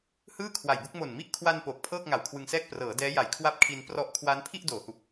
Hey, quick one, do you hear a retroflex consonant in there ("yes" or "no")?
no